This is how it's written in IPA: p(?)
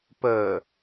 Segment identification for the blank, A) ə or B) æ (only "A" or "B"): A